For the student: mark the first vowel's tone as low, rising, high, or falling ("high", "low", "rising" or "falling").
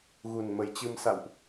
low